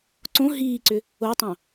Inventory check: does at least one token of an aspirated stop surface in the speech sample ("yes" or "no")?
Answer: no